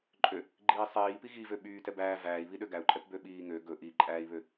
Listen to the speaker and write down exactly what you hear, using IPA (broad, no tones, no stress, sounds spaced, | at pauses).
ǃʼ ø | ɡ͡ǃ iː sˤ iː p i ɣ i v ø ɓ yː t ɛ b æː v æː i̯ β i ɗ ø ɡ æ u̯ ǃʼ ɛ p b ø ɓ iː ŋ ø ɡ ɵ ʔ i ǃʼ æː i̯ β ø